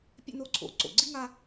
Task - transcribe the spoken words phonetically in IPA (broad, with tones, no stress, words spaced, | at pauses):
pʲɛ̰˥no˥ǀʰo̰˨ ǀo̰˩ɡ͡ǀi˥ŋa˦